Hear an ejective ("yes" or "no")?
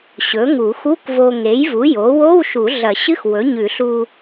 no